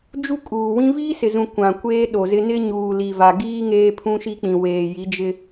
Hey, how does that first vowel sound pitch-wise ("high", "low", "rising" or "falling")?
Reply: high